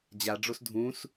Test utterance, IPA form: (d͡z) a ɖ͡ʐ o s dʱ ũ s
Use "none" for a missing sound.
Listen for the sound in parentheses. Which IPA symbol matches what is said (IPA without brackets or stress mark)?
d͡ʑ